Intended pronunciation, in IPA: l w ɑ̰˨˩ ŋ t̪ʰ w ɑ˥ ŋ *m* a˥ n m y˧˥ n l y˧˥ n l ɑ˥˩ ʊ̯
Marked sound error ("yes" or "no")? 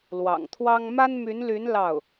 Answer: no